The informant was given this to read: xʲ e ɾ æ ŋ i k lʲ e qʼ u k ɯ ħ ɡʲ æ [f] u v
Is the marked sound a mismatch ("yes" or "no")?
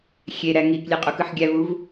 yes